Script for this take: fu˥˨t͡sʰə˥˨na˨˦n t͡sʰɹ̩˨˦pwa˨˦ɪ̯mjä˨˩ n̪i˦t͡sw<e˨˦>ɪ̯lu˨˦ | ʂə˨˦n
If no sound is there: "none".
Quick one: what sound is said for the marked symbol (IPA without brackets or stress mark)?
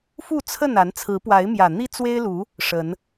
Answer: e˦